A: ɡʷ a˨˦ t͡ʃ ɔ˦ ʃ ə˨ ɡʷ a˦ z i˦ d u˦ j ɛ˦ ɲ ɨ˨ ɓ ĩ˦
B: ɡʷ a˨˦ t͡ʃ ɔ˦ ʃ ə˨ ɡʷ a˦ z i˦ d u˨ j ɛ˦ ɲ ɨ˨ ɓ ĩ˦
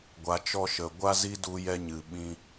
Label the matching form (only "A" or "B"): A